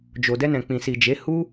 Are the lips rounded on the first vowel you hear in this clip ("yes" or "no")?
yes